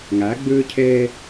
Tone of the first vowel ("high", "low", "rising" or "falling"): rising